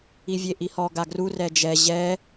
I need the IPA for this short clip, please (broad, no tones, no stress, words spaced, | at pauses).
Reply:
ivʲeʔihɔ ɡaɡru rɛd͡ʒɛ ʑɛ